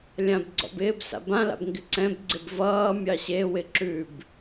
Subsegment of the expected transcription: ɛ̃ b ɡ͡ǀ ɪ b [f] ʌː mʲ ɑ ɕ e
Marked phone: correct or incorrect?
incorrect